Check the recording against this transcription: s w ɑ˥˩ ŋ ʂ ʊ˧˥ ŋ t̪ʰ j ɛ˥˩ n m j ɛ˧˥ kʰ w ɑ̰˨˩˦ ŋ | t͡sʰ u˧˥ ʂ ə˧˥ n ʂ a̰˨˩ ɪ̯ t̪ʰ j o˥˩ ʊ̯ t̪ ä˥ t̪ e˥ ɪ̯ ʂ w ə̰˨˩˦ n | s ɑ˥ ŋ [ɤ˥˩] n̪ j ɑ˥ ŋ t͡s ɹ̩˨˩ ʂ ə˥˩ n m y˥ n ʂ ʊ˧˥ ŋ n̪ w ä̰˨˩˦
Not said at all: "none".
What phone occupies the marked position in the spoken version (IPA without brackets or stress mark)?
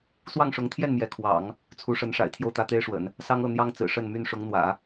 ɤ˥˩